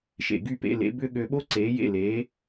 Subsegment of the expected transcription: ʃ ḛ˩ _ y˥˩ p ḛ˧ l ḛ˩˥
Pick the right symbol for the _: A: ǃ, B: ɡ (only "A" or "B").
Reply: B